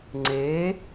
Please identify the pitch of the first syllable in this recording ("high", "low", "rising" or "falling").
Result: rising